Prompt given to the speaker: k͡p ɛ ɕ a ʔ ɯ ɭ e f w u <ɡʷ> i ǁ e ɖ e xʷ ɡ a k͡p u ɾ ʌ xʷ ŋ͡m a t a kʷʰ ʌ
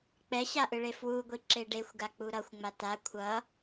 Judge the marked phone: correct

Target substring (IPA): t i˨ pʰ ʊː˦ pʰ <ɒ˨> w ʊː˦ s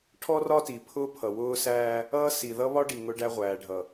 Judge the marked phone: incorrect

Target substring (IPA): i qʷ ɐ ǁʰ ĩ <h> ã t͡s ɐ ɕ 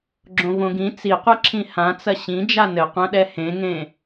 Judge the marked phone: correct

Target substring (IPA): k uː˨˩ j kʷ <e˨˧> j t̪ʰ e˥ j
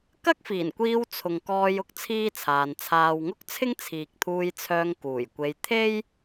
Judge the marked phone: incorrect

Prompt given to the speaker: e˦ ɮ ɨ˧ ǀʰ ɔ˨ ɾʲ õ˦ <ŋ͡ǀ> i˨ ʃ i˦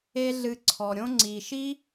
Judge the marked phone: correct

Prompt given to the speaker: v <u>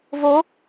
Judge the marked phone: incorrect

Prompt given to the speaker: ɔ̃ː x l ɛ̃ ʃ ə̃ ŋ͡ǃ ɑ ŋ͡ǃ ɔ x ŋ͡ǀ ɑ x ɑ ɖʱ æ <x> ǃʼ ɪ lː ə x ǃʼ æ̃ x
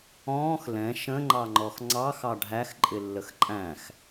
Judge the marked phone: correct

